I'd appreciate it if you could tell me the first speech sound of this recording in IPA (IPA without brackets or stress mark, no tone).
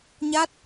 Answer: ɲ